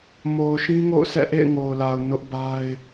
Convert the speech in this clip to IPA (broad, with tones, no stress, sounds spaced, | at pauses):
m o˨ ʊ̯ ʃ ĩ˦ ŋ o̰˦˨ ʊ̯ sʰ ɛ̰˦˨ ʔ ḛ˦˨ ɪ̯ ŋ o˨ ʊ̯ l a˨ ʊ̯ n ʊ˦ ʔ b a˦ ɪ̯